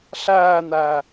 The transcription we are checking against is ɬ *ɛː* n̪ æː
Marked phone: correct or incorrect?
incorrect